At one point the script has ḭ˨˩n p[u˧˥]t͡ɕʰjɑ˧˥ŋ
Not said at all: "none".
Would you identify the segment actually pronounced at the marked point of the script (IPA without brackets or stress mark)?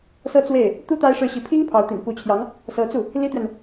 u˧˥